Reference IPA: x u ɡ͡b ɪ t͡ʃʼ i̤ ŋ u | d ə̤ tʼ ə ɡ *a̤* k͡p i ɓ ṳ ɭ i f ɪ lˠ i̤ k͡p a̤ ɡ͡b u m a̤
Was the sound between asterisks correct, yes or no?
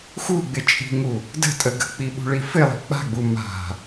no